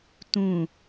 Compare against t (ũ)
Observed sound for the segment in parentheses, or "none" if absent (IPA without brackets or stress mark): ũ